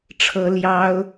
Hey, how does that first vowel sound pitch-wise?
high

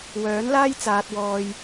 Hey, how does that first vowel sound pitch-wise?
rising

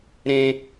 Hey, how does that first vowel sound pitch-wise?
high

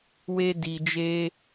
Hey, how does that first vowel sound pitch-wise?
high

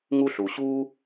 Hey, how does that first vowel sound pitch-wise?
high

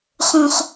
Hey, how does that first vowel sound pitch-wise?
high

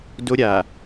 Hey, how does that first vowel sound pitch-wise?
high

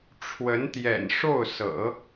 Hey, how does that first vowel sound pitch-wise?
rising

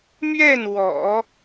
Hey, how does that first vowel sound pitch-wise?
falling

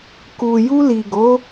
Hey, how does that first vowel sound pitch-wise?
low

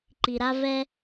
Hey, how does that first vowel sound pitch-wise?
low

